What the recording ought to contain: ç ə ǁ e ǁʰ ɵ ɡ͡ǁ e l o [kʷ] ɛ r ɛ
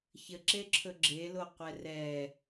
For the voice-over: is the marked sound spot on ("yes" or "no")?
no